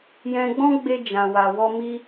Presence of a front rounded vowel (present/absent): absent